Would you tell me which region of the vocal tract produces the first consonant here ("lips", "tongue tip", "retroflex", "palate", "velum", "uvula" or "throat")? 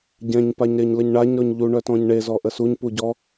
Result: palate